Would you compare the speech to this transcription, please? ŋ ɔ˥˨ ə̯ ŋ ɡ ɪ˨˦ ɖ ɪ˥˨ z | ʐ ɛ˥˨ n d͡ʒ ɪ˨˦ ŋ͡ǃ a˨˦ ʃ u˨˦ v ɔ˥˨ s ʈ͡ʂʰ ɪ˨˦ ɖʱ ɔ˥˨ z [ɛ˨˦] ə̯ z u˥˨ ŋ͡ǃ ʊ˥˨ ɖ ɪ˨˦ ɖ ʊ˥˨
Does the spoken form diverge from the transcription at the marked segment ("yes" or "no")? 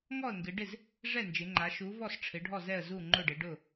yes